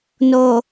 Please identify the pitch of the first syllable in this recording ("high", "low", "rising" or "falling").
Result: low